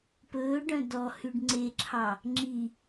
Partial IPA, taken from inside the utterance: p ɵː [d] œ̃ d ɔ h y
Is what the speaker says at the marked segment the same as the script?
no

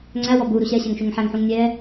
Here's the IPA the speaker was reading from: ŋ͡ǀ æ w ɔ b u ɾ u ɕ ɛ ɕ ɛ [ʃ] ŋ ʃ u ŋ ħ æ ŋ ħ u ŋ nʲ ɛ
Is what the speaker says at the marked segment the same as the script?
no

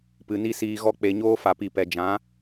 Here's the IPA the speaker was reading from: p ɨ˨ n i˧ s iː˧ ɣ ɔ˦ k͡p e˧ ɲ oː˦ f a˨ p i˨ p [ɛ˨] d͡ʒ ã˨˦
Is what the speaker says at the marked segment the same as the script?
yes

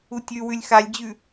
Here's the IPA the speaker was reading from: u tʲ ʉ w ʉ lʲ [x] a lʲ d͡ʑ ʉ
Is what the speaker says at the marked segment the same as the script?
yes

